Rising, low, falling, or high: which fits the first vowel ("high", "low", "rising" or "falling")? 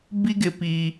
high